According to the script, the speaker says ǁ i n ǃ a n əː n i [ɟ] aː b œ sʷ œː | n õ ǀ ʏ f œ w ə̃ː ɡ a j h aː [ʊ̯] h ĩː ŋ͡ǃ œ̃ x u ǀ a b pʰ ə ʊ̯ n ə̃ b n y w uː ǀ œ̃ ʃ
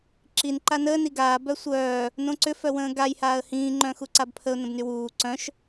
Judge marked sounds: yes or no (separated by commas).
no, no